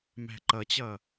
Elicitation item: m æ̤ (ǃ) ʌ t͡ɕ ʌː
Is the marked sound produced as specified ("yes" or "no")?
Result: yes